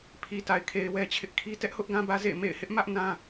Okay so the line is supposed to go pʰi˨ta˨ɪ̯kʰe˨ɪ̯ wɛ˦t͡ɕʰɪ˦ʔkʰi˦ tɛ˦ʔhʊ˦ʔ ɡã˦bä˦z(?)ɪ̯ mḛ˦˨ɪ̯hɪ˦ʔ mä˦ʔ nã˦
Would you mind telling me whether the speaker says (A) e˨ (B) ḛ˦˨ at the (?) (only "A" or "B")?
B